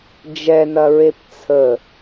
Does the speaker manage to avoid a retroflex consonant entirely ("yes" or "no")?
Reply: yes